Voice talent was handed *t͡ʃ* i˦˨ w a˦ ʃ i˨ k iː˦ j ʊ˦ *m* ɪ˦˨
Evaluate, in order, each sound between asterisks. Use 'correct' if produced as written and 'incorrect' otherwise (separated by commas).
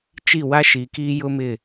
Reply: correct, correct